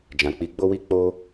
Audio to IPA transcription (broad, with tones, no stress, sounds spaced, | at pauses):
d͡ʒ ã˨ k͡p i˨˦ ɡ͡b o˦ w i˦ k͡p o˦